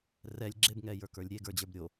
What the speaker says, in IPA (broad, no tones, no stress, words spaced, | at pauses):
rɛlʲ ɡ͡ǁebŋɛjə˞kə˞lʲ ɾʲeɡə˞d͡ʑə˞b ɾʲo